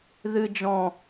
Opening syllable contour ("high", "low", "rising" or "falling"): low